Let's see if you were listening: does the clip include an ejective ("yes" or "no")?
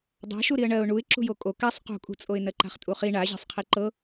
yes